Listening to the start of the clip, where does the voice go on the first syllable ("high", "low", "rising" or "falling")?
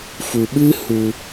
low